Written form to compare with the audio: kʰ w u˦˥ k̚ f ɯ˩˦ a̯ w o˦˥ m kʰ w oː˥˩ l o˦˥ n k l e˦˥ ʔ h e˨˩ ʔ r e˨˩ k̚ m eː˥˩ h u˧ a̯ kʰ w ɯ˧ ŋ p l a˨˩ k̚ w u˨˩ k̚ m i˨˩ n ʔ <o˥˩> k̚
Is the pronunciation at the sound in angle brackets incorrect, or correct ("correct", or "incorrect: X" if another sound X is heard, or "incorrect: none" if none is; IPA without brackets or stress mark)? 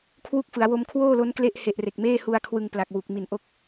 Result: incorrect: o˦˥